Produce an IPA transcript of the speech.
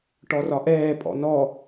ʈ ɔ r ɒ ʔ ɛː pʼ ɔ̰ n ɔ

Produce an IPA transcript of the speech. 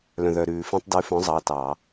l œ̃˩ ð œ˩ ɾ ʉː˩ f ẽ˧ tˤ d ʉ˨˥ f œ̃˨˥ zˤ ɑ˩˧˩ t ɑ˧˩˧

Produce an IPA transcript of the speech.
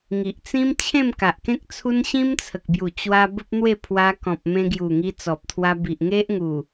ŋ i˨ ʔ t͡s ĩ˦ m t͡ɕʰ ẽ˥˧ m k a˨ ʔ k ẽ˦ k̚ t͡sʰ u˦ n ɕ ĩ˦ m t͡sʰ ə˨ k̚ b j u˨˩ t͡ɕ w a˦ b ə˦ p̚ n̪ w e˥˧ pʰ w a˧ k ɔ̃˨ p̚ m ẽ˧ ɡ j u˨˩ ŋ i˧ t͡s ɔ˨ p̚ t̪ʰ w a˧ b i˨ ʔ ŋ e˦ ʔ ŋ u˨˩

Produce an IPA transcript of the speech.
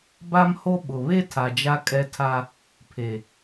b a˦ m h o˦ ɓ ʊ˨ β e˦ tʰ a˨ d͡ʒ a˦ kʼ ɛ˦ tʰ a˦ | pʰ e˨

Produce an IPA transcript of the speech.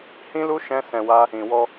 h ĩ˦ l u˦ ʃ ɛ̃˦ s ɛ̃˧ w a˦ | ĩ˨ w ɔ˧

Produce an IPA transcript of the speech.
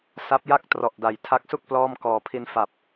s a˦˥ p̚ j a˥˩ k̚ t r ɔ˨˩ ʔ d a˨˩ j tʰ a˦˥ k̚ s u˥˩ k̚ p l ɔː˥˩ m k ɔː˨˩ pʰ i˧ n f a˨˩ p̚

